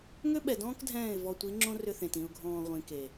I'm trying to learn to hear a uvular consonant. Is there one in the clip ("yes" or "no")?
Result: yes